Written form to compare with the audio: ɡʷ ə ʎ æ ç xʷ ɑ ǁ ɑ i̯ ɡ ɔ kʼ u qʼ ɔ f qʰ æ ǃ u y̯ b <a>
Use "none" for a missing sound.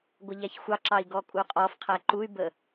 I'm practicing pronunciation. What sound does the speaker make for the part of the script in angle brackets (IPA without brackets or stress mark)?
ə